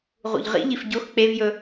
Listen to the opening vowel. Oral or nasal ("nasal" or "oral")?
oral